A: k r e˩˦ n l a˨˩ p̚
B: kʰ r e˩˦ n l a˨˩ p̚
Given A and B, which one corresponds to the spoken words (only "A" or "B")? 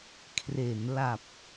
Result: B